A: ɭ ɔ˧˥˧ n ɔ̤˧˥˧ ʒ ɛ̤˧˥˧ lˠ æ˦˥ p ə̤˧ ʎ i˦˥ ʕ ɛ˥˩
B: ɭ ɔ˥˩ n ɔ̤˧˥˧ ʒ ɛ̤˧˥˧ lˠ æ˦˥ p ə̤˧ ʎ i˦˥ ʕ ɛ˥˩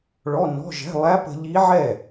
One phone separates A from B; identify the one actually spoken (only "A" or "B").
A